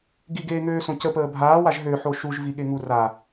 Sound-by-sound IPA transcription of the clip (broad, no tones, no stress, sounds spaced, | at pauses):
ɡ i ɡ eː ŋ øː s õ c ə p əː bʱ aː w a ʒ ɦ ø ħ o ʃ u ʒ v i ɠ e ŋ u r a